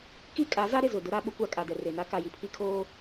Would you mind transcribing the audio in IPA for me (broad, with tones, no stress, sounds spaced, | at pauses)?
k i˦ kʼ a˨˦ z a˦ ɾ ɪ˨ z ʊ˨ d ʊ˦ ɾ a˦ ɓ ʊ˦ kʷ a˦ kʼ a˨ d ɛ˨ r e˨ n a˦ k a˨ j i˨ pʰ i˦ kʰ oː˦